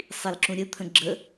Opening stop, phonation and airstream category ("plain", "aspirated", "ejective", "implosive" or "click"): click